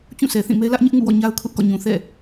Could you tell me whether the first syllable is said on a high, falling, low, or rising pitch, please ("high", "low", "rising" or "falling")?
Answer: falling